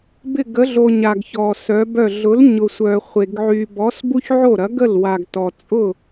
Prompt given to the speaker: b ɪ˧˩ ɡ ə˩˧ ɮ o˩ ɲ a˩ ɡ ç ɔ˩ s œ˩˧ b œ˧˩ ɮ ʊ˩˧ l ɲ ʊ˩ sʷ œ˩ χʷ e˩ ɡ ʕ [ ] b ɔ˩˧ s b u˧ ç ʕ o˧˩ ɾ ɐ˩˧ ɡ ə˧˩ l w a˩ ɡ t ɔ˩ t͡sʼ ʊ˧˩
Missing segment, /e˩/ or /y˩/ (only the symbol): y˩